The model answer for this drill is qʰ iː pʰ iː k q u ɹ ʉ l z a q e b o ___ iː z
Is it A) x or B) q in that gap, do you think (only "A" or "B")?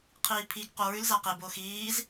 A